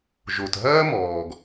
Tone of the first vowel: low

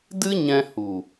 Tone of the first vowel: high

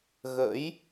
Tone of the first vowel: rising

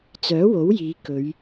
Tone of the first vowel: rising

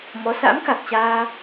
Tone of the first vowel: rising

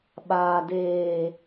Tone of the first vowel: low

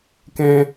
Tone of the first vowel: high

